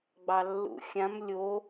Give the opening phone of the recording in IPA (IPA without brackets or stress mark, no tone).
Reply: ɡ͡b